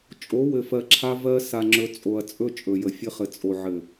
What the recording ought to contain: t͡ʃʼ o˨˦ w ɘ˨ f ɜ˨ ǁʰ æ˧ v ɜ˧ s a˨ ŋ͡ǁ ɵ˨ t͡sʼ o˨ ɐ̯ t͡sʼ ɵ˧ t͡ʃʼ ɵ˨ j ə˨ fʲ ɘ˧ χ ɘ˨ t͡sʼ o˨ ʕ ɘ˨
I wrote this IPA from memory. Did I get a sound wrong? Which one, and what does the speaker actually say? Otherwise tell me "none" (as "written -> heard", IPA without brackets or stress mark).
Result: æ˧ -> a˧